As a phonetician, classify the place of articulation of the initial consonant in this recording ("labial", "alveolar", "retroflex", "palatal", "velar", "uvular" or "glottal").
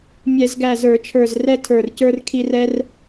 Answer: labial